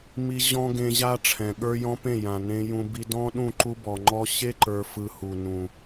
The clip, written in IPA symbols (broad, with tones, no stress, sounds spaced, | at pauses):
m i˧ ʑ ɔ̃˦ ɡ ẽ˧ ʑ a˦ ʈ͡ʂʰ ɛ̃˨ ɠ ə˞˦ j ɔ̃˦ p ẽ˦˨ j ã˨ n ẽ˧ j ũ˧ b i˧ d ɔ̃˦ ɗ ũ˦˨ ǃ u˦ b ɔ˨ ŋ͡ǃ ɔ˧ ɕ e˦ ǃ ə˞˨ f ɯ˧ h u˨ n ũ˨